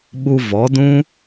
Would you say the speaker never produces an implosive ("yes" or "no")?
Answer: no